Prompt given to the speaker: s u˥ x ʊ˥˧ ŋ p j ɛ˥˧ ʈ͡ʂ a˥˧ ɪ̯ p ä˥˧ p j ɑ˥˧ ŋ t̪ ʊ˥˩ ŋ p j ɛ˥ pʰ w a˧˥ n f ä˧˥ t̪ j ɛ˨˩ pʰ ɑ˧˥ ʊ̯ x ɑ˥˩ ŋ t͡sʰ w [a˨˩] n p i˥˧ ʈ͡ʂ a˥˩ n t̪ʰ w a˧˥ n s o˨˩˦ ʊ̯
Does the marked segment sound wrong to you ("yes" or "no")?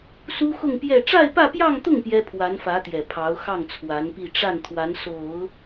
yes